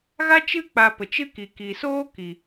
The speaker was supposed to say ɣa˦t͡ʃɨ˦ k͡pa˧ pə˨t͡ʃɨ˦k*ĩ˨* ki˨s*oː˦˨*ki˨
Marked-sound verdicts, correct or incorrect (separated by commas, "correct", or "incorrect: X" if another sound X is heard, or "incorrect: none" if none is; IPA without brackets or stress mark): incorrect: i˨, incorrect: oː˦